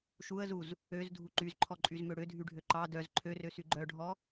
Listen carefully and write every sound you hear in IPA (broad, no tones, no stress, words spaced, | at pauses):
ʃuə̯zuz | øzdʱu ǃyzǃʰɔǃʼyzmø ɽødʱyɖʱø ǃɑ dœz ǃʰørøsy ɡ͡ǃœɖʱɔ